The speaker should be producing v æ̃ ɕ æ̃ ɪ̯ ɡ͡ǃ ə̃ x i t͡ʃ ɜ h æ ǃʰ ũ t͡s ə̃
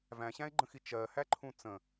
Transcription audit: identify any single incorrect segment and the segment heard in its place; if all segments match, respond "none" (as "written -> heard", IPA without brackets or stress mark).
none